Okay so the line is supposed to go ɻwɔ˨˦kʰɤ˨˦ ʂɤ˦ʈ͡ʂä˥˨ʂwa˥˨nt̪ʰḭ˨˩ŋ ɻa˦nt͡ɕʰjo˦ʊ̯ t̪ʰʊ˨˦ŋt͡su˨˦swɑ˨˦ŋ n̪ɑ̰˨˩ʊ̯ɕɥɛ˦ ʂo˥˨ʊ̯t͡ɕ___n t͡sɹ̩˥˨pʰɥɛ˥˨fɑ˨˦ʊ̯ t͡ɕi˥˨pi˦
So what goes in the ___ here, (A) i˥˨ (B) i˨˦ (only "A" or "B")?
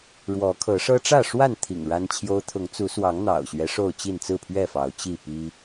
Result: A